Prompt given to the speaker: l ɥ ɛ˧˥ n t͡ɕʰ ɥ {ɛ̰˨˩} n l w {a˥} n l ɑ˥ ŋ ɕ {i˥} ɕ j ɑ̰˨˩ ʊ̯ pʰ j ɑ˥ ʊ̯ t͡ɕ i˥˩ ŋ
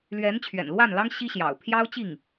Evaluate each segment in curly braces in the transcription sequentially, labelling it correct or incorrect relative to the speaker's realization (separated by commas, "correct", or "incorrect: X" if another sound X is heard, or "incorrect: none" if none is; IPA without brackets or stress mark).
correct, incorrect: a˥˩, correct